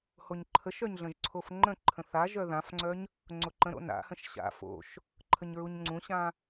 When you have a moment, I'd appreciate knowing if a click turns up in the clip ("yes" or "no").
yes